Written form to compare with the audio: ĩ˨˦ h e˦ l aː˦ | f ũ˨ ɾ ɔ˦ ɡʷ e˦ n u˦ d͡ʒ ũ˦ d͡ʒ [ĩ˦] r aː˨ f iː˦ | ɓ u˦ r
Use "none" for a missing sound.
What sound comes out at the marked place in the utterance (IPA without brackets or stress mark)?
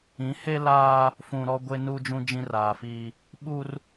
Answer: ĩ˦